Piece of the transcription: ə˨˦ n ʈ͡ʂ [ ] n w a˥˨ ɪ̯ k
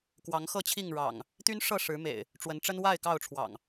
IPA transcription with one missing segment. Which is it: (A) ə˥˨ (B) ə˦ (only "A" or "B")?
B